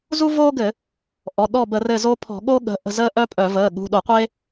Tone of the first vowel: high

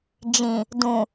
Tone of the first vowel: low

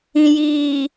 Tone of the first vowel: low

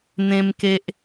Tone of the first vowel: high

